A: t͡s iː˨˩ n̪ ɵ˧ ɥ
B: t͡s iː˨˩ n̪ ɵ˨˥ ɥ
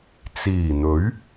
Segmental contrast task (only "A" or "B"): B